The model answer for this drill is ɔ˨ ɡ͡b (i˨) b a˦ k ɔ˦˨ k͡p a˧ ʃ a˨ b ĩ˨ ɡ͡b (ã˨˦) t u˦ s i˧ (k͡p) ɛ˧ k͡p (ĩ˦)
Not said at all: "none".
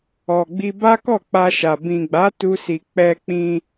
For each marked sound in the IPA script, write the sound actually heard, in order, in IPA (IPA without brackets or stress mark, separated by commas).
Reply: i˧, a˨˦, k͡p, ĩ˧